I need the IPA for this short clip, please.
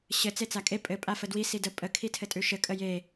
ɕ ɘ t͡s e t͡s a kʼ e pʼ ɘ pʼ a f ə d w i s i d ə pʼ ə kʰ i tʰ ɘ tʼ ʉ ʃ ɘ kʼ ə j e

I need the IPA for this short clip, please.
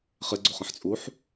χ ɪ ɡ͡ǀ o χ ə̃ ħ t͡sʼ u ħ

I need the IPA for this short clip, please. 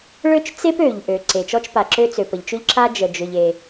ɭ ø˥ t͡ʃ t͡s e˥ p ø˩ ʎ ʔ ø˩ ǀ e˩ t͡ʃ ɔ˥ t͡ʃ p a˩ ǁ ø˥ t͡s ø˩ p ə˩ ʎ t͡ʃ ø˥ ʎ ǁ a˥ d͡ʒ ə˩ d͡ʒ ø˩ ʎ e˩

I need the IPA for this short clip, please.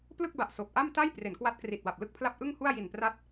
p l ɯ˥˩ k̚ b a˨˩ ʔ s o˨˩ k̚ ʔ a˥˩ m t a˥˩ j p r e˩˦ n k w a˦˥ t̚ k r i˨˩ t̚ w a˨˩ p̚ l ɯ˥˩ k̚ pʰ l a˥˩ p̚ ʔ ɯ˥˩ ŋ h u˥˩ a̯ j i˨˩ n p r a˦˥ t̚

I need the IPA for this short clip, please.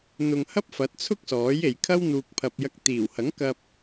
n̪ ʊ˧ ŋ h ɐ˥ p̚ f ɐ˨˥ t̚ t͡sʰ ʊ˥ k̚ s ɔː˨˥ j e˨ j kʰ ɐ˥ w n̪ uː˨ k̚ pʰ ɐ˨ p̚ j ɐ˧ k̚ t̪ iː˨˩ w h ɐ˨˥ ŋ k ɐ˧ p̚

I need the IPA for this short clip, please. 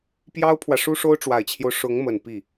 p j ɑ˥ ʊ̯ pʰ w ä˨ ʂ u˥ ʂ o˥ ʊ̯ ʈ͡ʂ w a˨˩ ɪ̯ t͡ɕʰ j o˦ ʊ̯ ʂ ʊ˧˥ ŋ m ə˨˩ n p i˥˩

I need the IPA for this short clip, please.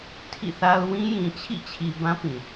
tʰ ḭ˦˨ θ a˦ ʊ̯ w ĩ˦ j ĩ˨ t͡ɕʰ ḭ˦˨ t͡ɕʰ i˨ b ã˦ p ĩ˨

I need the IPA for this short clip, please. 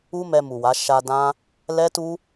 u˦ m ɛ˧ m u˨ w a˨˦ ʃ a˧ d ã˦ | l ɛ˦ t u˦

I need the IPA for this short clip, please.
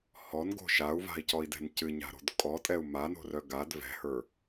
h ɔ n ɡ o̤ ʃ a u̯ v a̤ i̯ c ɔ i̯ d ɛ̤ n c ɨ ɲ a̤ ɾ o̤ d kʼ ɔ tʼ ɛ u̯ m a n o̤ r œ ɡ a d v ɛ̤ h ə˞

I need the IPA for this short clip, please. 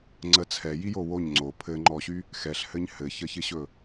ŋ͡ǀ ə t͡sʰ ɛ j i j o w o ɲ ŋ͡ǀ o pʰ ɘ ŋ͡ǃ ɔ ɕ y | x ɛ ɬ h ɘ ɲ h ɘ ç ə ç ɪ ɕ ɵ

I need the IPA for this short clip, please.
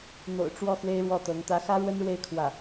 n̪ o̰˨˩ ʊ̯ ʈ͡ʂ w ɔ˥˩ x w e˥ ɪ̯ ɻ w ɔ˥˩ t̪ ɤ˧˥ ŋ t̪ ä˧˥ x ä˥ ɻ w ə˥ n ɻ w e˥˧ ɪ̯ kʰ w ä˥˩

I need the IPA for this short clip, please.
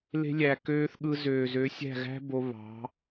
l e̤˧ lʲ æ˨ k øː˧ θ ɠ ɯ˧ z øː˨ z ø˨˦ sʲ æ̤˦˨ ɣ æ̤˦ b o˧ β ɑ̤˨˦

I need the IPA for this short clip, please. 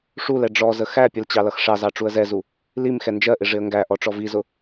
ʂ u l ɛ ɖ͡ʐ ɔ z ə x æ pʲ ə l t͡ɕ ɑ l ʌ x ʂ ɑ z ɑ ʈ͡ʂ u ə̯ z ɛ z u | l i m x ɛ n d͡ʒ ɜ ʔ ɪ ʐ ɪ ə̯ ŋ ɡ æ ʔ ɔ ʈ͡ʂ ɔ v i z ʊ

